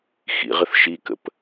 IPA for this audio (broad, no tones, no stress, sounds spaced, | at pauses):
x ḭ ʁ ə θ ʃ i k ə̰ p